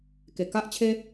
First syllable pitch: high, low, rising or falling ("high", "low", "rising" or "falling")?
low